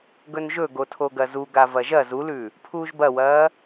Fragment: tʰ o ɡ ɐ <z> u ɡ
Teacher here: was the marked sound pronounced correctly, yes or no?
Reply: yes